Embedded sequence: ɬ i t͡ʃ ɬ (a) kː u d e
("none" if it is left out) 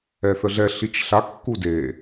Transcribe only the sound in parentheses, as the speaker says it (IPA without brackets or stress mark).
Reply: a